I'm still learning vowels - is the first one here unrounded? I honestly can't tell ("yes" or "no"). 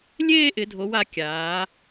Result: yes